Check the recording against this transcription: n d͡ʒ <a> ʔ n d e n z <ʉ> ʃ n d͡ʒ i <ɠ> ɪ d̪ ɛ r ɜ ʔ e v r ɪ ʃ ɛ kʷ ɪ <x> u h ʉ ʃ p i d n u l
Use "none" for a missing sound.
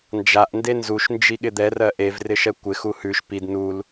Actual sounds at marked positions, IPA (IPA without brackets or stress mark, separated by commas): a, u, ɠ, x